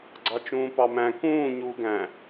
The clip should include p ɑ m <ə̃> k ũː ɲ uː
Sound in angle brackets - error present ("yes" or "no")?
yes